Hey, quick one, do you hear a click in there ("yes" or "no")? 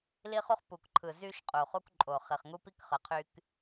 yes